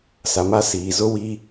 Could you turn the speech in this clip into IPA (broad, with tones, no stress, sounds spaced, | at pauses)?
s a˨ m a˦ s iː˨ z ʊ˦ w i˦